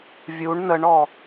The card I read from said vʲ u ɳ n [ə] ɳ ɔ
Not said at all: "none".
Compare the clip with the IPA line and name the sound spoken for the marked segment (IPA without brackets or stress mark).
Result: ə